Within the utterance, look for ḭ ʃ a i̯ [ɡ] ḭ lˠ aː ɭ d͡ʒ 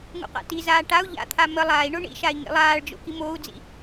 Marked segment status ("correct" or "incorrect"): incorrect